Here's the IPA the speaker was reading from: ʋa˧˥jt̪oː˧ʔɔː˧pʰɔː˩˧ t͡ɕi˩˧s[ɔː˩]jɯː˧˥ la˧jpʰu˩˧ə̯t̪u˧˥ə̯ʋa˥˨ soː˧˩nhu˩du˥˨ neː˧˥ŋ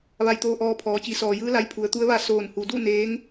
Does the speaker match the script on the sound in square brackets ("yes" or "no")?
yes